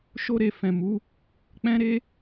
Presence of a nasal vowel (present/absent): present